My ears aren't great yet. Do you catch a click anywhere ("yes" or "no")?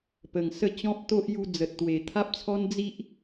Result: no